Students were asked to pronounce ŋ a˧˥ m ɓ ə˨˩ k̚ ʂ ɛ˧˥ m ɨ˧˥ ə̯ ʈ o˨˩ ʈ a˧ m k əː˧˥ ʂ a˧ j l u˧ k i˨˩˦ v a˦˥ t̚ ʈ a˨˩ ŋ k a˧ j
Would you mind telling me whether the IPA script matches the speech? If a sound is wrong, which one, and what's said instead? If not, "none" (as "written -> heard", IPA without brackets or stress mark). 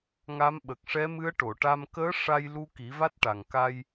o˨˩ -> o˨˩˨